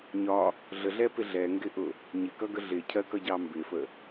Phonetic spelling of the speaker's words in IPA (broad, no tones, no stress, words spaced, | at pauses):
ɲɒ | ɮəɮɛpɪ ɮɛŋɡɪʔʊ | ɲɪkʌɡə ɮɪcʰɜkʌɟɑ mbɪfə